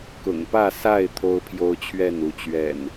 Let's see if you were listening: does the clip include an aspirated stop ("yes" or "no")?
yes